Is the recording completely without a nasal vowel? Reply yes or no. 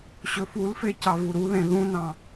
no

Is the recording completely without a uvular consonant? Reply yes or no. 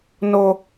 yes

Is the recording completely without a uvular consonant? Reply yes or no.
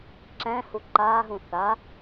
yes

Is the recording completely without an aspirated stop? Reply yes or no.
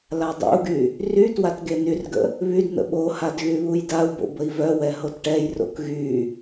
yes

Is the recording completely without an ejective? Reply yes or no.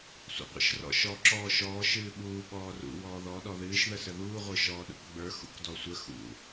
yes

